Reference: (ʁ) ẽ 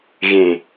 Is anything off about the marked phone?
yes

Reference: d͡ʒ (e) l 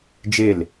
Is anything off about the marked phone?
no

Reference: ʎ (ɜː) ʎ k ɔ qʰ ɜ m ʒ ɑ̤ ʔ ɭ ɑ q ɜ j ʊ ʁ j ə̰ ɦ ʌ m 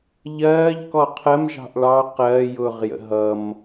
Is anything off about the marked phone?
no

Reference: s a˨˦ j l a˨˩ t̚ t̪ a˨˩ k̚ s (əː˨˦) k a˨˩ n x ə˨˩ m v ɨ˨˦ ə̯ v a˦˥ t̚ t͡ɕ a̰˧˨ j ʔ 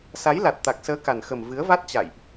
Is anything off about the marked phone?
no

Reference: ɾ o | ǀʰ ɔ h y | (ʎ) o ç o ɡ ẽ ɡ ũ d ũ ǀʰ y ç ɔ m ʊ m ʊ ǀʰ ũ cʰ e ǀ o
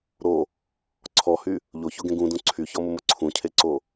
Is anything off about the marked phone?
no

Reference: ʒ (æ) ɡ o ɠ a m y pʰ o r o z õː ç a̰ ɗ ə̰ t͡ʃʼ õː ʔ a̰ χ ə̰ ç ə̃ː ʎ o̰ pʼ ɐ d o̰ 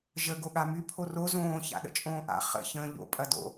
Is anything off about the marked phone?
yes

